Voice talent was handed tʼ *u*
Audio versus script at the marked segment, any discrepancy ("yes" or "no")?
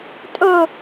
yes